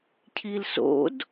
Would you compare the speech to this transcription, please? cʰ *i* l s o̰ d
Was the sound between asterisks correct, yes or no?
yes